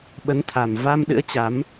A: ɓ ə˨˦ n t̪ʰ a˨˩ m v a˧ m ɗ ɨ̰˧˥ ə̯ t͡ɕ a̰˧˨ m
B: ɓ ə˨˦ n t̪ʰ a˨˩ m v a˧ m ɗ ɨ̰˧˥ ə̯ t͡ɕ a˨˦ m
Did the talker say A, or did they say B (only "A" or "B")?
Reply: B